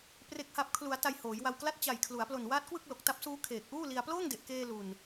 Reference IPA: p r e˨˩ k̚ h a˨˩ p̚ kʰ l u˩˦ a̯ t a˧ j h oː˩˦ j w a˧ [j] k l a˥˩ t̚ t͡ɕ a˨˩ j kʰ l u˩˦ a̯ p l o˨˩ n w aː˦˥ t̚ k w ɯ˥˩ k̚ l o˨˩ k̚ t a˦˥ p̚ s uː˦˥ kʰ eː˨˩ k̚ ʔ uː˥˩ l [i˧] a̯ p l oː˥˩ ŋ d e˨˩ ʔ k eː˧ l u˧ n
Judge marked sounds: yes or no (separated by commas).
no, yes